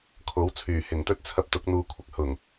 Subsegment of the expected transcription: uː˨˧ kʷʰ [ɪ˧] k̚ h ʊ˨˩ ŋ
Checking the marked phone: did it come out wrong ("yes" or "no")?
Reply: no